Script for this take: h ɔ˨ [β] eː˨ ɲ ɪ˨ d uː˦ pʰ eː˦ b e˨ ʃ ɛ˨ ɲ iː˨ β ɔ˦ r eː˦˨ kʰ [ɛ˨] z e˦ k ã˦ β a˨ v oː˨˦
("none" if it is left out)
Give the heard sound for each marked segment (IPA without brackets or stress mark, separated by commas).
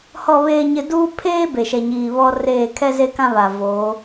β, ɛ˦